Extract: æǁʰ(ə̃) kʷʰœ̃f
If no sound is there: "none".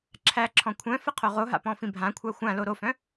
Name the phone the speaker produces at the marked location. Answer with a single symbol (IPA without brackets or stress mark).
ɔ̃